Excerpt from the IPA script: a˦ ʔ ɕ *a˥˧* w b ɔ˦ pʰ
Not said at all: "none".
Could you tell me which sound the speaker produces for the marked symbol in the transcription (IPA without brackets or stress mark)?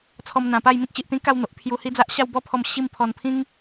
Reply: a˥˧